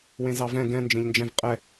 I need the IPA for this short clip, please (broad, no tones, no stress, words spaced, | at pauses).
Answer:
wẽzɑvɛ̃ ɡɛ̃ nd͡ʒẽʎnd͡ʒɛ̃v qʼɛ